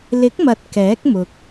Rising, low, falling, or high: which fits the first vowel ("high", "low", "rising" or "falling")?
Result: rising